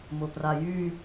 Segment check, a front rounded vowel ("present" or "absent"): present